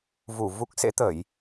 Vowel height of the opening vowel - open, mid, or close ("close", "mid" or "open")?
close